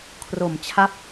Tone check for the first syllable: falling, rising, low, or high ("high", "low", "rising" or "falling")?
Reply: low